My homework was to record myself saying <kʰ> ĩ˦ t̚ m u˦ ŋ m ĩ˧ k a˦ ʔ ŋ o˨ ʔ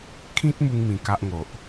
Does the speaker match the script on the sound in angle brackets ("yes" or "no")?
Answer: yes